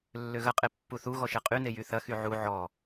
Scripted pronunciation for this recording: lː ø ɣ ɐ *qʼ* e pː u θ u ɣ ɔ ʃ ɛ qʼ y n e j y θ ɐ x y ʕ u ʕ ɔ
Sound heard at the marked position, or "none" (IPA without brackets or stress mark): qʼ